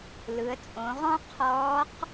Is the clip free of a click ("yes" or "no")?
yes